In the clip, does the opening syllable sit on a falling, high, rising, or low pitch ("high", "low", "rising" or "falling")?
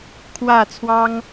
low